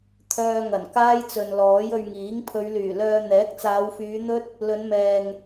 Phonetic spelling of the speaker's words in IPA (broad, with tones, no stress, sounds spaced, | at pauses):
t̪ʰ œː˧ ŋ ɐ˨˩ n k aː˥ j t͡s ɵ˨ n l ɔː˨˥ j ɵ˧ ɥ ŋ iː˨˥ ŋ pʰ ɵ˨˧ ɥ l yː˨˩ l œː˧ n̪ ɛː˨˥ k̚ t͡s aː˨˧ w f yː˨˧ n̪ ɵ˥ t̚ | l ɵ˨˧ n m ɛː˨ ŋ